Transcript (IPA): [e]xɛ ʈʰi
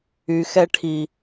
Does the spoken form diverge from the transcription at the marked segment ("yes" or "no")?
yes